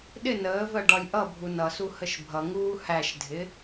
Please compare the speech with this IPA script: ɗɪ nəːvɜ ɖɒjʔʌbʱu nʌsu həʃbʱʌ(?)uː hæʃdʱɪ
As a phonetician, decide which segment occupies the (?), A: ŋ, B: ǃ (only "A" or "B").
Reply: A